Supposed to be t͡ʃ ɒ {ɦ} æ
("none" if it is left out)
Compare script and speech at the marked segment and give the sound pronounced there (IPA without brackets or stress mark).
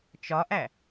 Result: ʔ